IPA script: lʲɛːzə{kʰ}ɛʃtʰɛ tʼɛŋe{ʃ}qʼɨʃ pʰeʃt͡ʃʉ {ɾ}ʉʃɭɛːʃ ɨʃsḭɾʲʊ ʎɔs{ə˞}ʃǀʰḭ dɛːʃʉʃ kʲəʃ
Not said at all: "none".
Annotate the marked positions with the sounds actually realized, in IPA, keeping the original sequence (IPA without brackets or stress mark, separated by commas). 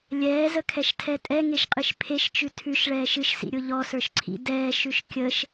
kʰ, ʃ, tʰ, ə˞